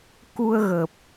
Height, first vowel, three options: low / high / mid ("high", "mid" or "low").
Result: high